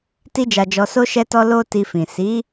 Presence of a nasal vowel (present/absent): present